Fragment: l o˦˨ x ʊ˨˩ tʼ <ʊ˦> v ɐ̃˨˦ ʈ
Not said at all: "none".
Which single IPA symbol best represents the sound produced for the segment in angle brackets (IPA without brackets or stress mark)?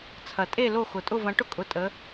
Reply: ʊ˦˨